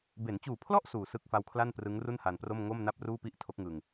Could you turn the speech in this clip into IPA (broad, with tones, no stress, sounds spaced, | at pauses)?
b e˩˦ n t͡ɕ uː˨˩ pʰ l ɔ˥˩ ʔ s uː˨˩ s ɯ˦˥ k̚ f a˦˥ w kʰ l a˥˩ n p r ɯ˦˥ ŋ r u˥˩ n h a˧ n p r o˥˩ m ŋ o˥˩ m n a˥˩ p̚ r uː˥˩ p i˥˩ ʔ tʰ o˦˥ k̚ ŋ ɯ˧ ŋ